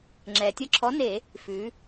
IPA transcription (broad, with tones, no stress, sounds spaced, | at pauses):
ŋ͡ǁ ɛ˩ tʲ ʌ˧ ǁʰ ɔ˨˥ n e˧˩˧ | f ʉ˩˧